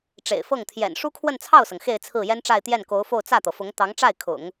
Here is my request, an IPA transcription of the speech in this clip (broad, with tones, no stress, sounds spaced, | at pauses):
ʈ͡ʂ ḛ˨˩ ɪ̯ f ɤ˥˩ ŋ t̪ʰ j ɛ̰˨˩ n ʂ u˥ kʰ w ə˥˧ n t͡sʰ ɑ˥˩ ʊ̯ s ɤ˩ ŋ x e˥˧ ɪ̯ t͡sʰ ɹ̩˥˩ j ɛ˥ n ʈ͡ʂ a˥˧ ɪ̯ t̪ j ɛ˥˩ n k o˧˥ ʊ̯ f o˥˧ ʊ̯ t͡s ä˥˩ t̪ ɤ˩ f ʊ˧˥ ŋ t̪ ɑ˧˥ ŋ ʈ͡ʂ a˥˩ ɪ̯ kʰ ʊ̰˨˩˦ ŋ